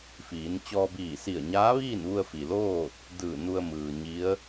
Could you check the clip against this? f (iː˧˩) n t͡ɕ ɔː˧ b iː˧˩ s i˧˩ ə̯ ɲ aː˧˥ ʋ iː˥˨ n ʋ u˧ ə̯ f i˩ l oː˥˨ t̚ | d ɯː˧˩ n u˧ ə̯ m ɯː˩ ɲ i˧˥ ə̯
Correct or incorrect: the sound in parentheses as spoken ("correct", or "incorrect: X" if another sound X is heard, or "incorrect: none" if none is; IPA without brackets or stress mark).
incorrect: iː˩˧